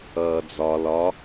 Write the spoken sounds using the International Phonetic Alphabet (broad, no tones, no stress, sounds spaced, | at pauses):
ʌː d͡z ɒ l ɒ